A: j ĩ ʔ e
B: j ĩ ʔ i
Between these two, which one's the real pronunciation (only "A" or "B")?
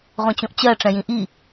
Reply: B